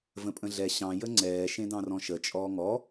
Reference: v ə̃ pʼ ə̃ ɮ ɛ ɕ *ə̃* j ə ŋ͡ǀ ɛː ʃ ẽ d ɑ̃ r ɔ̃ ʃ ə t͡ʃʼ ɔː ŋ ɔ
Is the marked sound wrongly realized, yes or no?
yes